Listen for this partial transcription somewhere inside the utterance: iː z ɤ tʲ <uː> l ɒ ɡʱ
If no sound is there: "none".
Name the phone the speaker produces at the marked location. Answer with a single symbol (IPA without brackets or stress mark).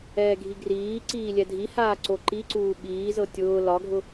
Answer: ʊː